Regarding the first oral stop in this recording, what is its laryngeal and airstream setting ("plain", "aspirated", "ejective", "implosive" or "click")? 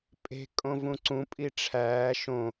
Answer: ejective